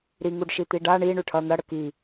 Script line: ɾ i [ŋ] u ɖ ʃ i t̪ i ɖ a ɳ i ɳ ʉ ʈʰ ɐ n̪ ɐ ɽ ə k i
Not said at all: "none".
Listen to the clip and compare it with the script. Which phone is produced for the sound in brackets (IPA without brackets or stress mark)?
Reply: ŋ